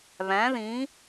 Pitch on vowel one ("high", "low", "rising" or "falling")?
rising